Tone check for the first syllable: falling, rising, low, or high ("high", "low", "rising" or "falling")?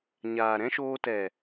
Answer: low